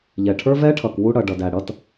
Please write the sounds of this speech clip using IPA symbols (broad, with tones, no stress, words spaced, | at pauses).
ʎɛ˨ʈʰə˞˦vɛ˦ʈʰʌ˨k wu˦ɽʌ˨ɖʌ˨d æ˨ɽʌ˦t